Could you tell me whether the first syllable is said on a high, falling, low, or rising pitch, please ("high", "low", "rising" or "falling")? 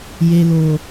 low